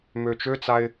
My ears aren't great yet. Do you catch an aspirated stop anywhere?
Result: no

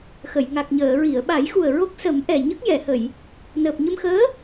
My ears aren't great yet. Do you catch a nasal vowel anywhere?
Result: no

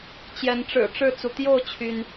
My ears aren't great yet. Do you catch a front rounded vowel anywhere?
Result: yes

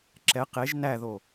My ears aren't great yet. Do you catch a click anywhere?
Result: yes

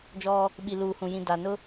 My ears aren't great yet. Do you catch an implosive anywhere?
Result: yes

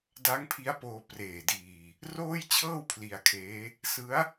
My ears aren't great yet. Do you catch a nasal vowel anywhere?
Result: no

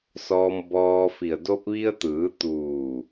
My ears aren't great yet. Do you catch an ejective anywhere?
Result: no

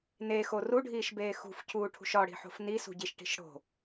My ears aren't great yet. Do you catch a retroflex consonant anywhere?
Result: yes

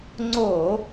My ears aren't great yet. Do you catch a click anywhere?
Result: yes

